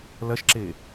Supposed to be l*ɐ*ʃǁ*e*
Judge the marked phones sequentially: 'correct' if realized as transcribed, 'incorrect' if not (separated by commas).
correct, correct